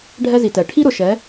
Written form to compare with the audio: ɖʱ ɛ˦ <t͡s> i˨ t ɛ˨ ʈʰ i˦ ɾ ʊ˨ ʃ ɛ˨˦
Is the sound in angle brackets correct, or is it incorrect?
incorrect